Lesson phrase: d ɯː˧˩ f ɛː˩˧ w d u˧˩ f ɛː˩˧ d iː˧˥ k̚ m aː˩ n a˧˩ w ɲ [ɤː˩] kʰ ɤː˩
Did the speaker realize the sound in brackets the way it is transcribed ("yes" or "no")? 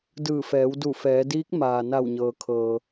yes